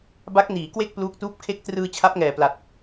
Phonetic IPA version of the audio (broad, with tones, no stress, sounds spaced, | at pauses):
b a˦˥ k̚ n iː˩˦ k w e˥˩ k̚ p l uː˦˥ k̚ t uː˥˩ p̚ kʰ e˦˥ k̚ t r ɯː˧ t͡ɕʰ a˦˥ p̚ ŋ ɛː˨˩ p l a˨˩ t̚